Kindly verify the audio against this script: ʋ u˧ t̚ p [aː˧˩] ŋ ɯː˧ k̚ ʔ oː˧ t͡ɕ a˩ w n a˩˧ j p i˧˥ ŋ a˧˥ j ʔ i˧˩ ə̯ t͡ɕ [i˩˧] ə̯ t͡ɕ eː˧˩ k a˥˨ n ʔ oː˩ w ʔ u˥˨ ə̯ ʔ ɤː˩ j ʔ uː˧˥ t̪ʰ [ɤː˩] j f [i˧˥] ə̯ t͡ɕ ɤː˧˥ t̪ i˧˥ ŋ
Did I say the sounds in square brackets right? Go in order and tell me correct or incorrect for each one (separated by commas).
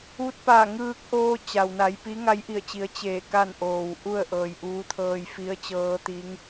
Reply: correct, correct, incorrect, correct